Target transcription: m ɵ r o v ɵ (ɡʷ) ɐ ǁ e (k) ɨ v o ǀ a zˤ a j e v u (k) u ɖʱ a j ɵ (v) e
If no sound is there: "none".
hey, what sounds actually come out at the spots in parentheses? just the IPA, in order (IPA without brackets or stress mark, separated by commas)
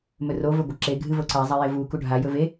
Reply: ɡʷ, ɡʱ, k, v